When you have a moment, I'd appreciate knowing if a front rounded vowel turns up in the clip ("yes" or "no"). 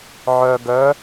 yes